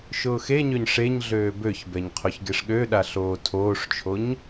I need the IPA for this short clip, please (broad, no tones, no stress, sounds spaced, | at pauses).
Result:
ʃ ʊː x e ɲ ø ɲ ʂ e ɲ ɮ øː b ø ç b ɛ ɲ qʰ o ç ɡ e ʂ ɠ ø ɗ a ɬ oː tʰ oː ʂ t͡ʃʰ o ɲ